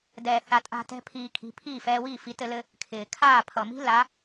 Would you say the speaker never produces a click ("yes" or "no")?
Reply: yes